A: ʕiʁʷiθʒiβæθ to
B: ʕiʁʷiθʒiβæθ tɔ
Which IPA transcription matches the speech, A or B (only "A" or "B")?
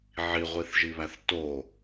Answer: A